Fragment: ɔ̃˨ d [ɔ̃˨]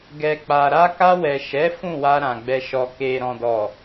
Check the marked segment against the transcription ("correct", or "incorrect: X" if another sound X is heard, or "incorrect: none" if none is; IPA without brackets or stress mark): incorrect: ɔ˨